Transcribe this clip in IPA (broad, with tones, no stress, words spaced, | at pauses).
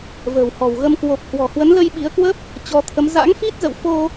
və̤ː˨˩whɔ̤˨˩wɣə˧m kwo˨˩p̚ hwɔ̤˨˩ hwə˨˦nlə˧jɓi˨˦ə̯kwə˦˥p̚ | t͡ɕɔ˨˦t̪ʰə˨˦m za̰˧˥ŋfi˦˥t̚zə̰˧˨w fo˧